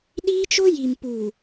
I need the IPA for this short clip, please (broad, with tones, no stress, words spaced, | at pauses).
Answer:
ɗiː˦t͡ʃo˦ ji˨mpuː˨